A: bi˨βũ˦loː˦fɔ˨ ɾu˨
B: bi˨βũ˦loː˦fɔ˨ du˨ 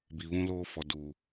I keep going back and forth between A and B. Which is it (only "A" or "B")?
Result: B